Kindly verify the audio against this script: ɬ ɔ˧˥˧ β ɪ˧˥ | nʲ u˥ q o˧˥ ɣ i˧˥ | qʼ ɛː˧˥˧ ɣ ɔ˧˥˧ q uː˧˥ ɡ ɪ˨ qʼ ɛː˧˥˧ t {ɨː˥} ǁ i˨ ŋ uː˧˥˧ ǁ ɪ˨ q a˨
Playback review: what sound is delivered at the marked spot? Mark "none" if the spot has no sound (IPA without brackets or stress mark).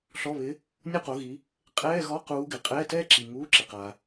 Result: ɛː˥